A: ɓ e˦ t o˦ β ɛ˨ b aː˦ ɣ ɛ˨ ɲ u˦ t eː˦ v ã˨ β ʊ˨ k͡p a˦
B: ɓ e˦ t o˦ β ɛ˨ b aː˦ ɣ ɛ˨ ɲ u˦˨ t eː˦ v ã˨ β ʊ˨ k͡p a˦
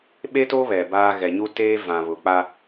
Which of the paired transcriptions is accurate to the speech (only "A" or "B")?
A